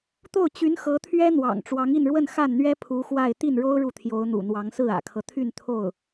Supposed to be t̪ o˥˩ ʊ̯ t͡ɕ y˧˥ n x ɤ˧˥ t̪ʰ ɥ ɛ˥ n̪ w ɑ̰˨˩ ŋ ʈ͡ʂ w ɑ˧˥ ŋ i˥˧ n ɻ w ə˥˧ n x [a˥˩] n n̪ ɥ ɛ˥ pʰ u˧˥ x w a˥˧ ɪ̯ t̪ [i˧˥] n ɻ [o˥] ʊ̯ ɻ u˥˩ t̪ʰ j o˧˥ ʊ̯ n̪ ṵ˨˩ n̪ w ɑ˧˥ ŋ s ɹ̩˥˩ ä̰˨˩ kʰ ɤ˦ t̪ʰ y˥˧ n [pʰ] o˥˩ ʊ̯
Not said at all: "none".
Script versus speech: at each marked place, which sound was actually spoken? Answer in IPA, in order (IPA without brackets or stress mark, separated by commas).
a˥˩, i˥˩, o˥, t̪ʰ